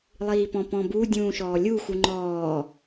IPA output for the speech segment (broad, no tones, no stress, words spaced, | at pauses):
lˠiːpɔ̃pɔ̃bu dʲũːʃɔːlʲu xuŋ͡ǃɔː